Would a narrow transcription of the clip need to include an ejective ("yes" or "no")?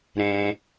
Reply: no